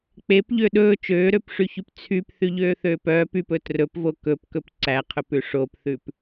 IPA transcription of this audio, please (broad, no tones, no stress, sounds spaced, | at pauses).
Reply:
k͡p e p ʎ ø ɗ ɵː t͡ʃ øː ɾ ø p ʂ y ç y p t͡sʰ y p θ y ʎ øː θ øː p œː p y p ɵ t r ɵ p v o k ɵ p k ɵ p ǀ æ qʰ ɵ p ʉ ʂ o p θ ʉ p